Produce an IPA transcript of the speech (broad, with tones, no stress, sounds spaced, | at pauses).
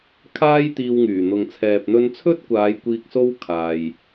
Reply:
kʰ aː˥ j t̪ iː˧ w ŋ yː˨˩ n̪ ʊ˨ ŋ t͡sʰ ɛː˨ p̚ n̪ ɵ˧ n t͡sʰ ɵ˥ t̚ kʷ aː˨˧ j kʷ iː˧ k̚ s o˥ w kʰ aː˨ j